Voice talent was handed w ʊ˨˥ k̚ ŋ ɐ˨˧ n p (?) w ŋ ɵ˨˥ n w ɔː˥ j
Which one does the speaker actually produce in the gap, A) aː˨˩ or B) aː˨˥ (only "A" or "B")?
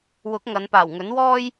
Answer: A